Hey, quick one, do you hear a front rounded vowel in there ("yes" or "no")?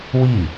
no